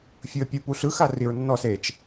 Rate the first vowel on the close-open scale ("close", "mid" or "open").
close